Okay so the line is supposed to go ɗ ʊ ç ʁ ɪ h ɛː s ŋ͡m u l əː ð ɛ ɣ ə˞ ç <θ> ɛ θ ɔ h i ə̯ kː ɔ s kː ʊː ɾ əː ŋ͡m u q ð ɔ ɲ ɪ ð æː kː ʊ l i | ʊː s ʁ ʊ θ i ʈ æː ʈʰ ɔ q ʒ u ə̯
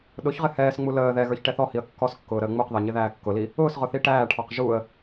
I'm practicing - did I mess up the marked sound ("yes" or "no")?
yes